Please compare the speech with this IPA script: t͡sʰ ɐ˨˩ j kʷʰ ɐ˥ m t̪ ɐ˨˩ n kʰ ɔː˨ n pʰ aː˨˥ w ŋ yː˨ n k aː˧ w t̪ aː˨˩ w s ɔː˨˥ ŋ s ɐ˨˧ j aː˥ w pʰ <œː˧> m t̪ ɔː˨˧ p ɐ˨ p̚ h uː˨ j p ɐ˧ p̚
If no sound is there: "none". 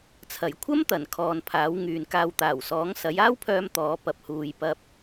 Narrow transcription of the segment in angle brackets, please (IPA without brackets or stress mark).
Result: œː˧